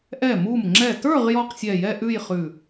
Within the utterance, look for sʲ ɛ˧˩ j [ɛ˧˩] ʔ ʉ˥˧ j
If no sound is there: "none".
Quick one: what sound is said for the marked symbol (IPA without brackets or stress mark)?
ɛ˥˧